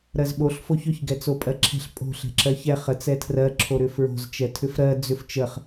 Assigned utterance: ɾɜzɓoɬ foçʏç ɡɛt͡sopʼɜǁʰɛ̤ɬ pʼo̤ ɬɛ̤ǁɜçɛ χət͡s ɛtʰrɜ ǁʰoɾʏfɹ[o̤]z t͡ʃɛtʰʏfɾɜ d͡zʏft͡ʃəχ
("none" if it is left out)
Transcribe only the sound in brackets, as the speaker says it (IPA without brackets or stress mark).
o̤